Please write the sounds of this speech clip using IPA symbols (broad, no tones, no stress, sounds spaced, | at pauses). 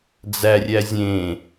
d͡z æ rʲ æ zʲ ẽ